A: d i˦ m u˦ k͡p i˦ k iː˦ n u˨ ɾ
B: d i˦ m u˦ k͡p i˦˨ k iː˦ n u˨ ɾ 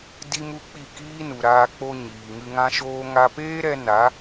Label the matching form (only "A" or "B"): B